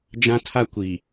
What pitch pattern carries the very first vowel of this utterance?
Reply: high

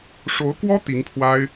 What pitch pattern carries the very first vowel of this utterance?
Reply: rising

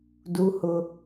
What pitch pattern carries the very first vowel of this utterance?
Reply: high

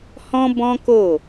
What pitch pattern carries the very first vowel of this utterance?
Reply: high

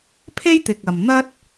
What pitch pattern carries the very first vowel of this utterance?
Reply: high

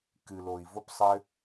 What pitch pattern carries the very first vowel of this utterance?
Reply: low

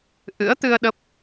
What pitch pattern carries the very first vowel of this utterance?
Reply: rising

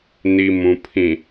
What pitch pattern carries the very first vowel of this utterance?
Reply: low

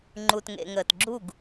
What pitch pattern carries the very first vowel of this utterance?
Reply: low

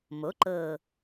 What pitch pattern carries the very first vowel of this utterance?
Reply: rising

